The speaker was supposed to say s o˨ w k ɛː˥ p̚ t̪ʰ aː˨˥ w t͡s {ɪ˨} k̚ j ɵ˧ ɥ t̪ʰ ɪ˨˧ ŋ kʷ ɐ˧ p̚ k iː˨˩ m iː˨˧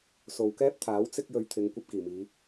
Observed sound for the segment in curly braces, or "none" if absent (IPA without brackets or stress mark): ɪ˥